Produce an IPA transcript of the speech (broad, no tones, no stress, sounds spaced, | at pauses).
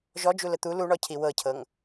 ʒ ɔ d͡ʒ u l ə t̪ u l u ɳ ɔ cʰ i w ɤ cʰ ɤ ŋ